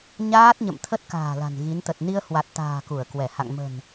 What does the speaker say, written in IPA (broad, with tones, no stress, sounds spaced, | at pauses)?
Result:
ɲ aː˦˥ t̚ ɲ ə̰˧˨ m t̪ʰ ə˦˥ t̚ k a̤ː˨˩ l a̤˨˩ n ɣ i˨˦ n t̪ ə˨˩ t̚ n i˧ ə̯ h w a˨˩ t̚ t̪ a̤ː˨˩ k u˧˩ ə̯ k w ɛ˧˩ h a̰˧˨ ŋ m ə̤˨˩ n